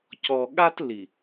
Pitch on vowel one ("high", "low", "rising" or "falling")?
low